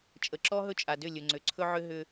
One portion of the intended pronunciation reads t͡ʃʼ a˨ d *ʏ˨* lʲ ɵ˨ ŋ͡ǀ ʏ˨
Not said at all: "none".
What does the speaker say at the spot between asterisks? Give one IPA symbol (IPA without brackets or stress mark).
ʏ˦˨